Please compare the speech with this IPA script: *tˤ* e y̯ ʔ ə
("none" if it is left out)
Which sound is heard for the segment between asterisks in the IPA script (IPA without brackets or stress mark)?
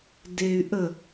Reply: d